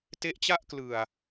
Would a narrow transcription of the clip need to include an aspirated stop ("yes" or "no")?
no